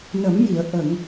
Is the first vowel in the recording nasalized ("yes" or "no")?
no